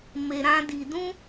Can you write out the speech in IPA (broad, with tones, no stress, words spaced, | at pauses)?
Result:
me˧ ɾã˦di˧ dũ˦